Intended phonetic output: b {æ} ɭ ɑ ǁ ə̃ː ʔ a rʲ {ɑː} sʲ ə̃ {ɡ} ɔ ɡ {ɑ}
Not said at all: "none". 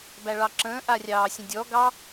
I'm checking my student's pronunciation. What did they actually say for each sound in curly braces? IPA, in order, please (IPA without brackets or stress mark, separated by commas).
æ, ɑː, dʲ, ɑ